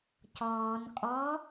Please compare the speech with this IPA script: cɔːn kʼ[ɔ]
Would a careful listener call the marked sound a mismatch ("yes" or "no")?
no